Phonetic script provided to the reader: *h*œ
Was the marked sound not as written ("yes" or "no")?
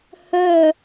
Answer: no